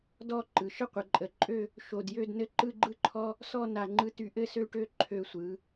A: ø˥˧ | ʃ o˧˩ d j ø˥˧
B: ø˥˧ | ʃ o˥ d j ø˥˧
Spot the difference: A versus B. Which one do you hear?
A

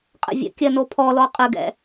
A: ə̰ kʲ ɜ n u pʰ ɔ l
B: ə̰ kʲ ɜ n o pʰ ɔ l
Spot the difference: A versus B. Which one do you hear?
B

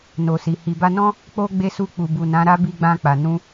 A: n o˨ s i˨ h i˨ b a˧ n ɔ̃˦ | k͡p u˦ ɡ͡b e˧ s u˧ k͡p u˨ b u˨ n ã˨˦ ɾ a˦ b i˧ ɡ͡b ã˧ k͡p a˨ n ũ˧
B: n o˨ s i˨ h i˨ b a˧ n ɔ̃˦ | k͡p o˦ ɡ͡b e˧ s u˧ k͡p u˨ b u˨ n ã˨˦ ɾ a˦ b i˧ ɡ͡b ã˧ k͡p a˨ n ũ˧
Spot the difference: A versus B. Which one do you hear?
B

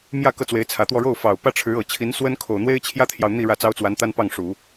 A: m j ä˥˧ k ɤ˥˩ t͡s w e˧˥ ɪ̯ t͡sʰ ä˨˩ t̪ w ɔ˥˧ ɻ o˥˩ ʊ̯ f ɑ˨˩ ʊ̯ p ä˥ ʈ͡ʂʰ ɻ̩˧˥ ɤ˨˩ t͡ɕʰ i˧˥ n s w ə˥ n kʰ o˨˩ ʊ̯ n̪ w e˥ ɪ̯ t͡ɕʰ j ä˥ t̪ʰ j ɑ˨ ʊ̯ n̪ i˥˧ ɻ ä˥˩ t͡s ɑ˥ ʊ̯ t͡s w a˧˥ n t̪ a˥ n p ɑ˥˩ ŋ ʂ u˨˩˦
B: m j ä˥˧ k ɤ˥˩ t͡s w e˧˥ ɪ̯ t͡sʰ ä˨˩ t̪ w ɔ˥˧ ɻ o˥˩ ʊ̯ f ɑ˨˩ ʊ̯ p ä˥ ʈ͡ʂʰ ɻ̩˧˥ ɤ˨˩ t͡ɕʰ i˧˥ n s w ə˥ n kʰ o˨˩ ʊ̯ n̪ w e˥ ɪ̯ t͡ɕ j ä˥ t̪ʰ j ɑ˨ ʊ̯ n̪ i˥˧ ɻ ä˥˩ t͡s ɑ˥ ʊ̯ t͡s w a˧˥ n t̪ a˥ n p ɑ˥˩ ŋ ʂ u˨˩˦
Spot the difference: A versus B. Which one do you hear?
A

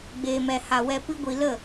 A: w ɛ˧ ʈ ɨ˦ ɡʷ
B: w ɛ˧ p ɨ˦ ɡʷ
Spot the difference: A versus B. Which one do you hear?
B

